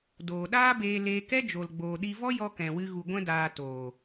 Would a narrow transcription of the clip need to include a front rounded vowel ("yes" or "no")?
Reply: no